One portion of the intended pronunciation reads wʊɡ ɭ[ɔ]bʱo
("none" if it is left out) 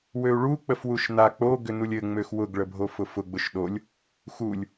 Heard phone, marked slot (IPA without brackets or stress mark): ə